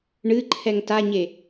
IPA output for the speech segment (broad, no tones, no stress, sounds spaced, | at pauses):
ɳ ɨ ǃʰ ɛ ŋ t a ɲ e